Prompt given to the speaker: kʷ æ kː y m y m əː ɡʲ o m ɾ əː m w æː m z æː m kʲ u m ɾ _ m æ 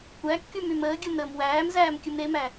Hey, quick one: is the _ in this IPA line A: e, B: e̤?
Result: A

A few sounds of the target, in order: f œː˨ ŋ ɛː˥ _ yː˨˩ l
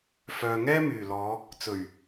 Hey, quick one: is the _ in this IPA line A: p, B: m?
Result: B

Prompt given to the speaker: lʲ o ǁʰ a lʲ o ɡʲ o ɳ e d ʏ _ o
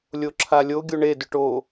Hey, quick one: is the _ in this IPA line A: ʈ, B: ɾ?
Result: A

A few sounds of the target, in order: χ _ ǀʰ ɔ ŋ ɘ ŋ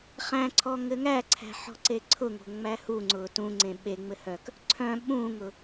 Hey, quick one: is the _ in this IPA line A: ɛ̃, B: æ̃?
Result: B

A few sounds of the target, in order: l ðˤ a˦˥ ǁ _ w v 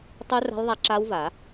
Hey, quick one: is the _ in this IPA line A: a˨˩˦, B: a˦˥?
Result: B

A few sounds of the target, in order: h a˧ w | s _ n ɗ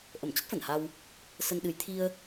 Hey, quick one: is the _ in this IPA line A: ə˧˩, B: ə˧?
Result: B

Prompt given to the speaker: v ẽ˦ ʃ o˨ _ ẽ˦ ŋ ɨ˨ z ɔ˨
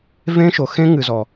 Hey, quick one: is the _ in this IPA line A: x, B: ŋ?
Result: A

